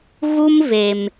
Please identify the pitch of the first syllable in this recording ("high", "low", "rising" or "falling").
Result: high